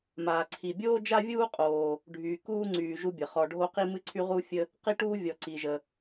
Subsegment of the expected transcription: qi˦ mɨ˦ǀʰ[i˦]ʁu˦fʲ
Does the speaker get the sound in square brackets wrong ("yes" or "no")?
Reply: yes